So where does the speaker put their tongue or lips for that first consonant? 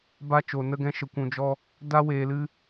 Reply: lips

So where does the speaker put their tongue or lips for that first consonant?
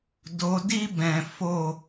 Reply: tongue tip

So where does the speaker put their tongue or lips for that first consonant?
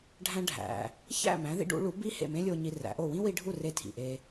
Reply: retroflex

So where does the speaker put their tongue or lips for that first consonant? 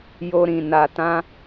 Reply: palate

